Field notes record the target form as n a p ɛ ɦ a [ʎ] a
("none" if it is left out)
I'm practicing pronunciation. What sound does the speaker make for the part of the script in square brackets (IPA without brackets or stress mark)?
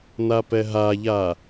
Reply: ʎ